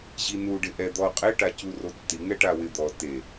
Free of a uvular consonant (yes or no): no